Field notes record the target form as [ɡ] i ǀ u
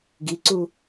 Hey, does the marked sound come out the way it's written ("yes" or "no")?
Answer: yes